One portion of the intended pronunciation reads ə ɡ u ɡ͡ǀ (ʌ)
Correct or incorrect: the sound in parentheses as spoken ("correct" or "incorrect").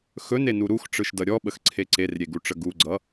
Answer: correct